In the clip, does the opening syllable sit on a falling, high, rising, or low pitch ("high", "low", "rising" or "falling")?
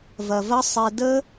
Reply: low